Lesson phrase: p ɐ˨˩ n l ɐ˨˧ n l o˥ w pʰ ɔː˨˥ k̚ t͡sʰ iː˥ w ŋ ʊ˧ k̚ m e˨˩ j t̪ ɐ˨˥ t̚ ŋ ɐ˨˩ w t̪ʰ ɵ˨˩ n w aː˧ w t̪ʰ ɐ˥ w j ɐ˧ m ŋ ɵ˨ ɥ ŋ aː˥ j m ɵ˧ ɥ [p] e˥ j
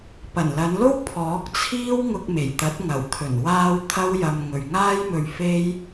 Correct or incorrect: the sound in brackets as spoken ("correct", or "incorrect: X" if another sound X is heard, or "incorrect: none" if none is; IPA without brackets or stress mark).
incorrect: f